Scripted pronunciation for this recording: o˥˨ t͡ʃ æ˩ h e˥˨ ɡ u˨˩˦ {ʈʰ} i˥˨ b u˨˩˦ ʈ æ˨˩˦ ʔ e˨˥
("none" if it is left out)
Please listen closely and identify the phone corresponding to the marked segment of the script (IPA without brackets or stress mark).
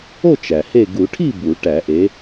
ʈʰ